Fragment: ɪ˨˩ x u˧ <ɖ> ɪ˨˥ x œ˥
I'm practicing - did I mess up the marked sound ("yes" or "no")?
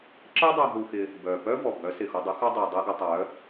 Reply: yes